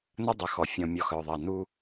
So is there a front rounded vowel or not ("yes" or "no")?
yes